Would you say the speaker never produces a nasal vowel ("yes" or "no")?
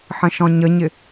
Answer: no